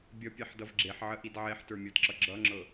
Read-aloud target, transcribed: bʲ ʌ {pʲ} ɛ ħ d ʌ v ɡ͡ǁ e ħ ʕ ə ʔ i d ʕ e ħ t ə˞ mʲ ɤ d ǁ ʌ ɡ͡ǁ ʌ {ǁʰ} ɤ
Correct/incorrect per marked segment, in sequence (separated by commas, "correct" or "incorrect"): correct, incorrect